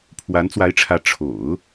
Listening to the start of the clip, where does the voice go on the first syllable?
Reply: rising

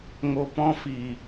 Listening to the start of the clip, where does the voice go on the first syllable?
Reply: low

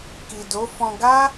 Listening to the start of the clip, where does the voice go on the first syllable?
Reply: low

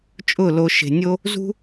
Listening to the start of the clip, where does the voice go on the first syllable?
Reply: falling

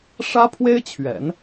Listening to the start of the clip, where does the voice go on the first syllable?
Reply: high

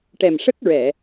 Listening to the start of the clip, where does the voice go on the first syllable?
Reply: low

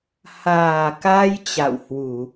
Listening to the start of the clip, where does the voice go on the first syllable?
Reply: low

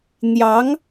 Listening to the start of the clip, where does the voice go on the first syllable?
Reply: rising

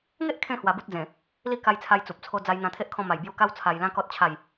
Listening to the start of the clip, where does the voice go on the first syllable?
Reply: high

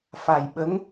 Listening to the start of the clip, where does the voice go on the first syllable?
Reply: low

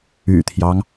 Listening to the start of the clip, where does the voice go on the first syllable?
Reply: low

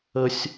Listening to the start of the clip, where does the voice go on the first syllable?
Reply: high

